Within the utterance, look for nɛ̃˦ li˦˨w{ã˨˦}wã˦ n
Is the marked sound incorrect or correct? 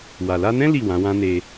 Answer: correct